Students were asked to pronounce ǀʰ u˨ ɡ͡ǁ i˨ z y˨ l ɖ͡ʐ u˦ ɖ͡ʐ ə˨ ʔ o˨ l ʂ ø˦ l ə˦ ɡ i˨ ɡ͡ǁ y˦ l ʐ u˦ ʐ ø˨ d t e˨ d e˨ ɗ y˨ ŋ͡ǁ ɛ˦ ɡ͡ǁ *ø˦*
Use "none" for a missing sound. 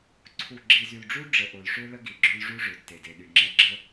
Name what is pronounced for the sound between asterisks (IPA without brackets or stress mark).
ə˦